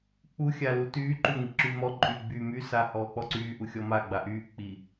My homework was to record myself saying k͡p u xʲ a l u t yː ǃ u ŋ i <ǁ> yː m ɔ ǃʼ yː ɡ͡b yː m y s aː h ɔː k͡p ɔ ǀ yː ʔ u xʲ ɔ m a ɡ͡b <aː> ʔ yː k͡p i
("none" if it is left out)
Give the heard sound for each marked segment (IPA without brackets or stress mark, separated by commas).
ǁ, a